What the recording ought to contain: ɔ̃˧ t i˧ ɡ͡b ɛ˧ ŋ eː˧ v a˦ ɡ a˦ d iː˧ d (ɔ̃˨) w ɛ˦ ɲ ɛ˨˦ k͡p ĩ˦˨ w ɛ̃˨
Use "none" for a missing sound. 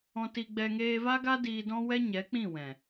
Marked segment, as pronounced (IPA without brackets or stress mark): ɔ̃˦